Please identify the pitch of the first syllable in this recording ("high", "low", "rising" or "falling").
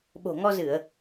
low